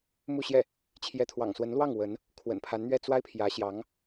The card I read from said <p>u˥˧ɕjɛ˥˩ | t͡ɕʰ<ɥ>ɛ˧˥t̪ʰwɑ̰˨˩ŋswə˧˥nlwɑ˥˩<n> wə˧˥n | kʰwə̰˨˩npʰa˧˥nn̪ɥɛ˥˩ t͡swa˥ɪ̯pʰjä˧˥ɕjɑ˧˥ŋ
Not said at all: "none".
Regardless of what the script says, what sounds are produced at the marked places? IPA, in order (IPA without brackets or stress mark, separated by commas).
m, j, ŋ